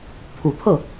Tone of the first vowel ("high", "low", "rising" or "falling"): low